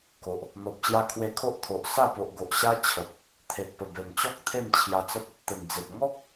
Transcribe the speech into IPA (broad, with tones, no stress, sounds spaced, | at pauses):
k o˨ ʔ | n̪ ɔ˨ p̚ ɕ j a˧ kʰ w e˧ kʰ o˦ ʔ t̪ʰ o˨ ʔ s a˥˧ p o˨ ʔ ɡ o˨ ʔ ɕ a˦ t͡ɕʰ ə˨ p̚ | t̪ʰ e˨ t̚ p ə˨˩ b e˨˩ m t͡ɕ ɔ˦ k̚ t̪ʰ e˥˧ m t͡ɕʰ j a˧ t͡s ə˦ p̚ | t̪ ə˨˩ n d͡z e˨ p̚ ŋ ɔ˦ k̚